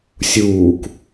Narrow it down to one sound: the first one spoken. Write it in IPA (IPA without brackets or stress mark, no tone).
sʲ